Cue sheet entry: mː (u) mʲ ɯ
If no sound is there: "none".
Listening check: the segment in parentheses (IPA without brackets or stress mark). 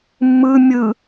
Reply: ɯ